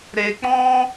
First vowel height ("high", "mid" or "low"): mid